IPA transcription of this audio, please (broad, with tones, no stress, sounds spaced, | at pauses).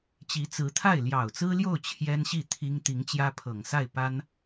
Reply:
t͡ɕ i˧˥ t͡s ɹ̩˧˥ t̪ʰ a˥˩ ɪ̯ l j ɑ˨˩ ʊ̯ t͡s ɹ̩˥ l j o˥˩ ʊ̯ t͡ɕʰ j ɛ˥ n ɕ i˥˩ t̪ʰ i˥ ŋ t̪ i˧˥ ŋ t͡ɕ j ä˥ pʰ ɤ˨˩ ŋ s a˥˩ ɪ̯ p a˥ n